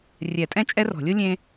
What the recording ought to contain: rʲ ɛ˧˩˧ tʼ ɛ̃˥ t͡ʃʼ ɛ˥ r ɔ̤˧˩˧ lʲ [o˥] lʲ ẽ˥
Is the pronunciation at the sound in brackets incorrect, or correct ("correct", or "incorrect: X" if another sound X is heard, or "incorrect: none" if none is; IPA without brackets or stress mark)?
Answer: correct